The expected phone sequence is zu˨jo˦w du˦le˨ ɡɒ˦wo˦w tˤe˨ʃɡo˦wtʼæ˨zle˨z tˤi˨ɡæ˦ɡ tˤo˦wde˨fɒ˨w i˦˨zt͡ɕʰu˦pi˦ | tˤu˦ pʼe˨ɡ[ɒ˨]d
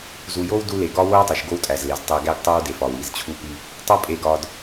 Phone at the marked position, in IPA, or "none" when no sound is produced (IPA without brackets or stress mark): ɒ˨